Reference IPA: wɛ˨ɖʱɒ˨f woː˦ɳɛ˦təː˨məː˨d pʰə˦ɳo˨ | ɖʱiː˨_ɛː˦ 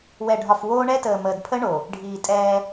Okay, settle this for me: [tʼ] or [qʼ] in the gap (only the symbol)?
tʼ